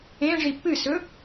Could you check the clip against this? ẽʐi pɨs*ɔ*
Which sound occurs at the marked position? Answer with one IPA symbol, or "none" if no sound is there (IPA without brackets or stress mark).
ɵ